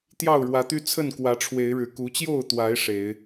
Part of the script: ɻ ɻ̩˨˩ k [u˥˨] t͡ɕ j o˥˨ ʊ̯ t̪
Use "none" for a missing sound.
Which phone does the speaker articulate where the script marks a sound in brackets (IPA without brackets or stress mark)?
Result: u˨˦